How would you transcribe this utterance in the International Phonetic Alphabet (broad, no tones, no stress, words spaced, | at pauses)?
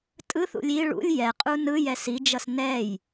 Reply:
tʼɯθṵlʲ i ɭṵlʲ jɛqʼu nɯjɛs id͡ʒʌs nɛj